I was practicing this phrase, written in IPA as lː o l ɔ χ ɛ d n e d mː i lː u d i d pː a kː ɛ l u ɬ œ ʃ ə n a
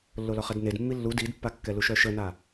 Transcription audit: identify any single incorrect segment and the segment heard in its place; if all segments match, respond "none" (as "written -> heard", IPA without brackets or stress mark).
ɬ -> ʃ